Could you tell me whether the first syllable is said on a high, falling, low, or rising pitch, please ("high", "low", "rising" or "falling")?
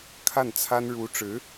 falling